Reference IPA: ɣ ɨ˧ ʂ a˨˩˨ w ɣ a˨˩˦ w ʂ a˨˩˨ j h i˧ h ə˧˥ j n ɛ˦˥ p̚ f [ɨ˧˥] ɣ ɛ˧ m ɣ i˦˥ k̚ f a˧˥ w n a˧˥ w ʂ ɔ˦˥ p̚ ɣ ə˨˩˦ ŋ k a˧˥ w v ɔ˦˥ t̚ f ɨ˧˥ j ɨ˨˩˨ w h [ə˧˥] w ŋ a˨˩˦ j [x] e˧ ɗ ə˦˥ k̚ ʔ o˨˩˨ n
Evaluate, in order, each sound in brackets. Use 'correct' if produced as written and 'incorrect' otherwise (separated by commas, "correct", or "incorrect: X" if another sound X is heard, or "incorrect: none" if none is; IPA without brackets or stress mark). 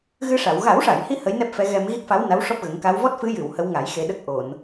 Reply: incorrect: ɛ˧˥, correct, correct